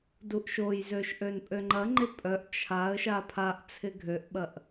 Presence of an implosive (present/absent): present